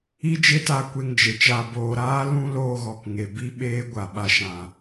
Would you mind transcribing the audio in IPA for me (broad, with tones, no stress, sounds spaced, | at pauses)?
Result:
i˦ d͡ʒ e˦ t a˧ kʷ e˧ ŋ d͡ʒ e˨ t͡ʃ a˨ b oː˨ ɾ aː˦ l ũ˧ l oː˦ ɣ ɔ˨ k ŋ e˨ b i˦ ɓ eː˦ ɡʷ a˨ ɓ a˧ ʃ ã˨